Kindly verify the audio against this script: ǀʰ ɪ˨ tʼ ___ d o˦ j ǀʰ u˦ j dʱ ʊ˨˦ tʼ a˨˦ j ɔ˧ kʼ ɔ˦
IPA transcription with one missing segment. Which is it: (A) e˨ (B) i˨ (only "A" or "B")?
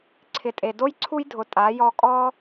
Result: A